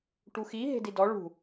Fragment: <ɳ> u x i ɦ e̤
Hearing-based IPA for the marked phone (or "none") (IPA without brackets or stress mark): ʈ